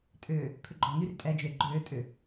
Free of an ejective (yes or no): no